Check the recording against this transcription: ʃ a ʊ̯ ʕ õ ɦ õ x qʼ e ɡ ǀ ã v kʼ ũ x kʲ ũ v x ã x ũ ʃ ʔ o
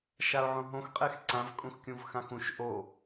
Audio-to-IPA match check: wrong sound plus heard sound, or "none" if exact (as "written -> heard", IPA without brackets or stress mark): ɡ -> x